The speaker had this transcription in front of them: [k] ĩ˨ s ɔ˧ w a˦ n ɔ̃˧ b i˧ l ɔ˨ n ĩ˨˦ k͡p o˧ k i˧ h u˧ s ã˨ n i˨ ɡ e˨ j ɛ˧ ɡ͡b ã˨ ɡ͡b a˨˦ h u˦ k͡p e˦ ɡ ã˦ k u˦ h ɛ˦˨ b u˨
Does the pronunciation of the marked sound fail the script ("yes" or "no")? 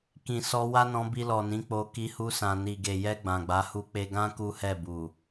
no